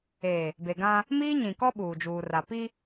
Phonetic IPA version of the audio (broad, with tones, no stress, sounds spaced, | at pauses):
eː˨ | b e˨ ɡ ã˦ | m iː˦ ɲ ĩ˨ k ɔ˦ ɓ uː˨ d͡ʒ uː˨ r a˨ p i˦